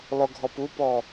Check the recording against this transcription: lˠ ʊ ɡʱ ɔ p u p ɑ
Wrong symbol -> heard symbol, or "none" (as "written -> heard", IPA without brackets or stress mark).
ɑ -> ɔ